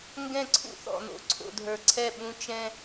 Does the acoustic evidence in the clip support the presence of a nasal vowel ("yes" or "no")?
yes